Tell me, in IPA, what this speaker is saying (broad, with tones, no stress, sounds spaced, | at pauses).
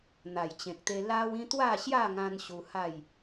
n̪ a˨˩ j t͡ɕ ẽ˨ k̚ t̪ e˧ l a˦ w ĩ˦ t̪ w a˥˧ ɕ j a˥˧ ŋ ã˧ n ɕ u˧ h a˥˧ j